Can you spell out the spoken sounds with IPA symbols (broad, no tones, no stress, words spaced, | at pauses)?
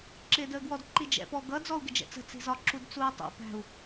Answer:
ǁɪːdəːɡwɔdǃi d͡ʒɛ̰pɔ ɡʌ d͡zɔu̯ɡɪd͡ʒɛ̰t͡sə̤ t͡si̤zɒ ǁudt͡sui̯tˤṵ pæ̤u̯